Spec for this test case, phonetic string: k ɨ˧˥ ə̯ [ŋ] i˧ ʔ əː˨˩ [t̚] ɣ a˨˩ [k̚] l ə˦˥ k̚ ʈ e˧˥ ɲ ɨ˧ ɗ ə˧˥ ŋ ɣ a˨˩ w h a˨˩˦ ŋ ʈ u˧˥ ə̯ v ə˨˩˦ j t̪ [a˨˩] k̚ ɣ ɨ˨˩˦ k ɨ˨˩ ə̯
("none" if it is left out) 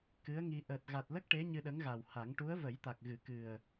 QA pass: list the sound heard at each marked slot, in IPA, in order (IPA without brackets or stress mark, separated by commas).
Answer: ŋ, t̚, t̚, a˨˩